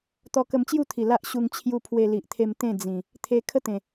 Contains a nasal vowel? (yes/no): yes